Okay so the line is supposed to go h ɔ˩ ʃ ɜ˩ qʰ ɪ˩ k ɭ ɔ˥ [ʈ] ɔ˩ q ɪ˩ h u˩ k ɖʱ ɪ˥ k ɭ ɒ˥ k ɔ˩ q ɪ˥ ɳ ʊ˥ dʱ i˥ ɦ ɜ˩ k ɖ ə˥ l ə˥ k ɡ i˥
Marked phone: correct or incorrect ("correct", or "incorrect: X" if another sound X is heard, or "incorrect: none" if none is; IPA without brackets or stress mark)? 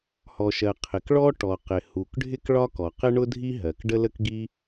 correct